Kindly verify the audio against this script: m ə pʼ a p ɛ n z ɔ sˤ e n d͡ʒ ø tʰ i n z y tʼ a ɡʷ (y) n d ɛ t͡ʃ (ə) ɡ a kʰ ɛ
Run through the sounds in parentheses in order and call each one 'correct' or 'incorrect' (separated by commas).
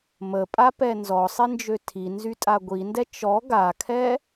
incorrect, incorrect